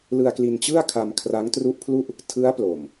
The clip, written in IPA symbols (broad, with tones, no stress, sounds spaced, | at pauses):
l ɯ˧ a̯ k l i˧ n t͡ɕ ɯ˥˩ a̯ kʰ a˧ m kʰ r a˦˥ ŋ t r u˦˥ ʔ pʰ l u˥˩ ʔ | tʰ ɯ˦˥ a̯ p l o˨˩ m